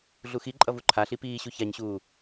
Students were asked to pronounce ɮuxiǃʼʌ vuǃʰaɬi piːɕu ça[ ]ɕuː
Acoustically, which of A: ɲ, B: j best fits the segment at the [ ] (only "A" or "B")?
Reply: A